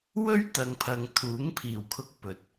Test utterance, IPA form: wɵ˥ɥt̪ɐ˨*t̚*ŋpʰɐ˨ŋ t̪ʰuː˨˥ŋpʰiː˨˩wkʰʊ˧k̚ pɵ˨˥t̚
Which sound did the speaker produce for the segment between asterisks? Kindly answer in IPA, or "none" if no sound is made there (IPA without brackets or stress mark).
none